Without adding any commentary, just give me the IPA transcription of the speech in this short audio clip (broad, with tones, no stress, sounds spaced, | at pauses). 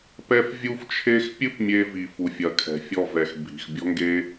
p ɛ˦ f vʲ u˦ f t͡ʃʰ e˦ x pʲ ɨ˦ p mʲ e˧ v i˨ f u˨ fʲ ɐ˨ kʰ ɛ̤˨ fʲ ɔ˦˨ v ɛ˨ x bʱ i̤˨ x bʲ ɔ̤˦ ŋ ɡ e˦